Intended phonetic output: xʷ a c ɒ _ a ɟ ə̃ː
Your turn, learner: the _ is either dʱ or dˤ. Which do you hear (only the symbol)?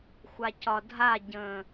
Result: dʱ